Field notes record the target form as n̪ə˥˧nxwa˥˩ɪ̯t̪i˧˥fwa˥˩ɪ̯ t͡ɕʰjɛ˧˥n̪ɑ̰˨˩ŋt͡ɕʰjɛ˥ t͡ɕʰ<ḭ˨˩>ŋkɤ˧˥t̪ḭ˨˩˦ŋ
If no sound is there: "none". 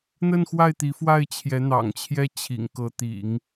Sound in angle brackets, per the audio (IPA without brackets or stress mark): ḭ˨˩